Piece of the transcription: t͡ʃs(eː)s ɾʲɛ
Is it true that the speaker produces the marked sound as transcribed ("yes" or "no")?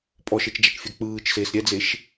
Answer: yes